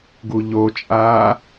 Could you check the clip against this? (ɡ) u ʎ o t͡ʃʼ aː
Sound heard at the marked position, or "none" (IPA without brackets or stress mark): ɡ